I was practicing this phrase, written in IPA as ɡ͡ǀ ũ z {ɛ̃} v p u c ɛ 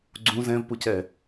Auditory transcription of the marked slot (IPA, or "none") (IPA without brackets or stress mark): ɛ̃